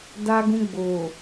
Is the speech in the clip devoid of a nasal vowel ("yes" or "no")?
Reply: no